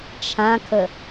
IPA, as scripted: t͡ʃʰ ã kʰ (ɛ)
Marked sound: incorrect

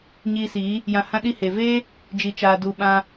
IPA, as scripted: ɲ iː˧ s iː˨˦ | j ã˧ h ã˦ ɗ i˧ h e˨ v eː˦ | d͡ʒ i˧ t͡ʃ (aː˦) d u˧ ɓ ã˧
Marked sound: incorrect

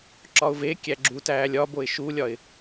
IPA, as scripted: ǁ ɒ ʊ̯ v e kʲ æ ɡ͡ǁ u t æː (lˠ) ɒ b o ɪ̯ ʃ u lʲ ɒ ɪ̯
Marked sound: incorrect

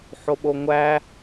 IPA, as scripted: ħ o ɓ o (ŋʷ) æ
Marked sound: correct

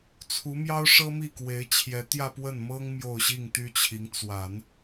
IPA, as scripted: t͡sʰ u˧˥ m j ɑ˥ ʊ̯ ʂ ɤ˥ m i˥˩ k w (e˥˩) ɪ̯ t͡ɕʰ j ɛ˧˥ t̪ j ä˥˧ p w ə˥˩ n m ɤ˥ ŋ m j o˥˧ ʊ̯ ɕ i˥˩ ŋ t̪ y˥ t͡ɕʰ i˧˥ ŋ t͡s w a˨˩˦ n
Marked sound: incorrect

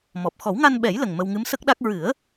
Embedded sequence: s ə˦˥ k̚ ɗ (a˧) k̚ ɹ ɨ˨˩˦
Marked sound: incorrect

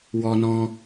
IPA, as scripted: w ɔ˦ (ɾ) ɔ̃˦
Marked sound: incorrect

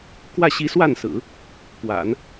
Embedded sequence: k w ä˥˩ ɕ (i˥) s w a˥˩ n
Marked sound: incorrect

